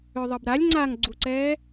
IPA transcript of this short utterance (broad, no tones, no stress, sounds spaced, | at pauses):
ø ðˤ ɤ b ɾ a lʲ ŋ͡ǀ a ŋ ɡ͡ǀ u ǀ ɛː